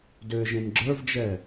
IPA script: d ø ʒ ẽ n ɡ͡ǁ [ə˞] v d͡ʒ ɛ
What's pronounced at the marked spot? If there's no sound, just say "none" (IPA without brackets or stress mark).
ə˞